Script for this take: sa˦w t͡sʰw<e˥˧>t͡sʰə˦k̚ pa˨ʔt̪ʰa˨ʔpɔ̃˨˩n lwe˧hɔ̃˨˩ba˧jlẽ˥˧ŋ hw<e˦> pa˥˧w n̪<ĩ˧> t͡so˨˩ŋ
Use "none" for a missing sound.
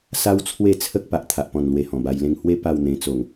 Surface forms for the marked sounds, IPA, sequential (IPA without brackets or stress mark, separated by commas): e˥˧, e˦, ẽ˧